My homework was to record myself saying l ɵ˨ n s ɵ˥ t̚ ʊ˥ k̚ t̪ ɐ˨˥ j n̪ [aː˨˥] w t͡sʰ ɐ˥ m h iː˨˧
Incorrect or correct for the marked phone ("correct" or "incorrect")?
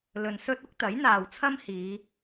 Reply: incorrect